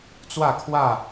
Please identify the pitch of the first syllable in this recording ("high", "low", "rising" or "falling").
falling